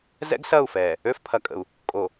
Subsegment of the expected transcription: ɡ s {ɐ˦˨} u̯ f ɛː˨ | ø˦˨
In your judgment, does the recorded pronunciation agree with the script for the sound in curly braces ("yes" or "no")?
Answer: yes